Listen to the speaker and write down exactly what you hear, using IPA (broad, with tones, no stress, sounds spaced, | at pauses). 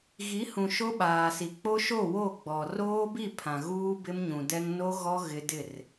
ɣ i˨˦ h ũ˨ ʃ o˦ ɓ aː˨ s i˨ k͡p o˦ ʃ o˦˨ w o˦˨ ɡ͡b ɔ˨ r oː˦ b i˦˨ pʰ ã˨ ɣ uː˦ b ɪ˦ m ɲ ũ˨ d ɛ˦ ŋ n o˦ ɣ ɔ˦ ɣ ɪ˦ d ɪ˦˨ r